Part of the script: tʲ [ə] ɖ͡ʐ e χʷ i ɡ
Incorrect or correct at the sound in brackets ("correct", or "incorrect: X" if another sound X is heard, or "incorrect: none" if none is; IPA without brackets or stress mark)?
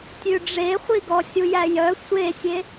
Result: incorrect: ʉ